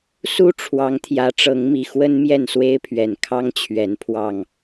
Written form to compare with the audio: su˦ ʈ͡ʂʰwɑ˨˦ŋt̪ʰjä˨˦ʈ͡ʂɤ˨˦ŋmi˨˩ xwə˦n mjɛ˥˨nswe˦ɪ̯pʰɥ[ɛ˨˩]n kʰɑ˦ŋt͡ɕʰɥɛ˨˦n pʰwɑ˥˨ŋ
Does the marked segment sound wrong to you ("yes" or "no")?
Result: no